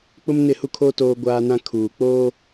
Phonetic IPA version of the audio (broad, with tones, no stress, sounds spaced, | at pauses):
k͡p ʊ˦ m n ɪ˦˨ h u˦ kʰ oː˦ t oː˦ ɡʷ aː˦ n ã˦ kʰ uː˨ k͡p oː˦